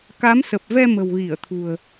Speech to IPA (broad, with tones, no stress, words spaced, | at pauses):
ka˨˦msə˨˩p̚vɛ˧ mə̤˨˩wɣi˧˩ə̯t̪ʰṳ˨˩ə̯